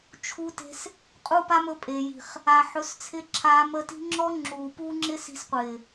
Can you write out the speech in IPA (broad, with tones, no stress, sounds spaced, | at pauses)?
t͡ʃʰ u˧ t e̤˧ s | qʼ u˦ p a˦ m ɵ˧ pʼ e˨ j i̤˨ χ | a˨ ħ ɵ˨˦ s t͡sʰ ɪ˧ ǁʰ a˧ m ə˧ t i̤˦ ŋ͡ǁ ɔ˦ ŋ͡ǁ uː˨ p uː˦ ŋ͡ǁ ɪ˦ s i̤˧ s qʷ ɪː˨